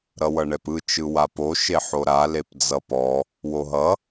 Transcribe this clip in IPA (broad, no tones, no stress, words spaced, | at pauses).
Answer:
ɾʌwʌɳɛpɯ t͡ʃɯwapo ʃeħoɾa lepd͡zʌpɔ | woɦʌ